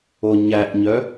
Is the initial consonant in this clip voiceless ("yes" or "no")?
no